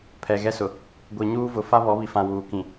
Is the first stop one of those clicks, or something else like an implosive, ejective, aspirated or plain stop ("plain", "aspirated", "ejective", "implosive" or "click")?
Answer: aspirated